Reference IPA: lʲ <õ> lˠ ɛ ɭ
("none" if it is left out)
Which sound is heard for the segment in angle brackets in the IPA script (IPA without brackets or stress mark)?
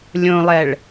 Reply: õ